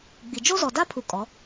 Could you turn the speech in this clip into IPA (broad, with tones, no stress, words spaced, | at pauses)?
ɡ͡bi˨ d͡ʒo˦zɔ˨da˦pʰu˨ kʼɔ˨˦